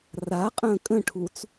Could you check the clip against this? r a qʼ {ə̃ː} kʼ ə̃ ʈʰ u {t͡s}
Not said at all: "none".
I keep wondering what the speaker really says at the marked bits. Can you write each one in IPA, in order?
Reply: ə̃ː, t͡s

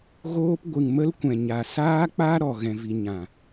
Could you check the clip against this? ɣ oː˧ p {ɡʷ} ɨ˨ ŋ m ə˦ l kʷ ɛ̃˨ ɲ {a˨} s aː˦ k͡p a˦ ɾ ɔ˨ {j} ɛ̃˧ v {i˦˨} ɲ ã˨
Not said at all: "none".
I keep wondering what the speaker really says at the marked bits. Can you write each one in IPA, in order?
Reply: ɡʷ, a˨, ɣ, i˧

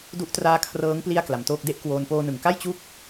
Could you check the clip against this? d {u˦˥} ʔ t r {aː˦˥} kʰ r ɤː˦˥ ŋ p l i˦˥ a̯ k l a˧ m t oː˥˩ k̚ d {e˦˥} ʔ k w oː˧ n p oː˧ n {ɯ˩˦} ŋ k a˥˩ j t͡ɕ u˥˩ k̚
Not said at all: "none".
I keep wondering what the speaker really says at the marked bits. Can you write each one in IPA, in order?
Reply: u˦˥, aː˦˥, e˥˩, ɯ˨˩

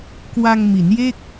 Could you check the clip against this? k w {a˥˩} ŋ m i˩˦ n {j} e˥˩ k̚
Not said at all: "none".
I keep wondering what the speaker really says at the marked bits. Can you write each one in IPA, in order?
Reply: a˧, j

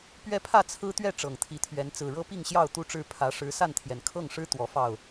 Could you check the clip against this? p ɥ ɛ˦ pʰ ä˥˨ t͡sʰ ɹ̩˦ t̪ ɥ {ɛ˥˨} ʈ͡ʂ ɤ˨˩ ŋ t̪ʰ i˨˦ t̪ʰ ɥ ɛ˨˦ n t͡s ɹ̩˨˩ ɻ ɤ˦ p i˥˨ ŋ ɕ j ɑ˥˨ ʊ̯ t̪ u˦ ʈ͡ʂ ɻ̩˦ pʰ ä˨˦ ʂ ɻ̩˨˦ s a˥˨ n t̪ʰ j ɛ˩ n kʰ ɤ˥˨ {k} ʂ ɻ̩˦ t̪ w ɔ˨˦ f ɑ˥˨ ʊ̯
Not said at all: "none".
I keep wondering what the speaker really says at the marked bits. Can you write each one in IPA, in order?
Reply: ɛ˥˨, ŋ

